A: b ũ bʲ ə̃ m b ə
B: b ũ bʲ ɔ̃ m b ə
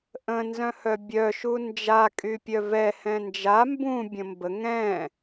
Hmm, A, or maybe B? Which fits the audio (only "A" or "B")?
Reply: A